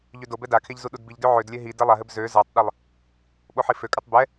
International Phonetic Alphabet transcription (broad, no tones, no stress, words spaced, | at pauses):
ʎødobɛ dakʰeʎ zuɗudbiʎdø ʕødlʲɛ ɦi dɛlˠaɦɘb zø zatˤɗɘlˠ | ɓoħiføkʼatˤ bɛ